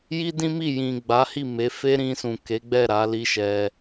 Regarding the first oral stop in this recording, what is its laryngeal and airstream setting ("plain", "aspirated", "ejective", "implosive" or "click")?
plain